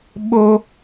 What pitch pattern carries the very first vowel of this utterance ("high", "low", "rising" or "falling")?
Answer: high